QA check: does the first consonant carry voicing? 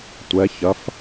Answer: no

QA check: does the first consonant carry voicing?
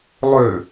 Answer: yes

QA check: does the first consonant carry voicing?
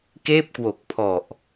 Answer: no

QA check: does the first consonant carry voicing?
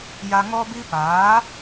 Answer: yes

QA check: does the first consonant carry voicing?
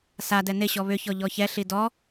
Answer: no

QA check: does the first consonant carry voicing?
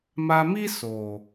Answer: yes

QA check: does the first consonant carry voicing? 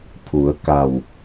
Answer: no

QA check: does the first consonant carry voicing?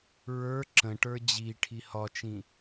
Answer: yes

